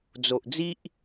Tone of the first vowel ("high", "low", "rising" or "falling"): low